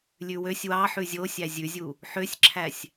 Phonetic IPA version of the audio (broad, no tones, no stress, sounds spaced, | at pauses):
lʲ ʉ w ø sʲ w ɑ ħ ʉ zʲ o sʲ æ zʲ ʉ zʲ u | ħ ø sʲ ǁʰ æ sʲ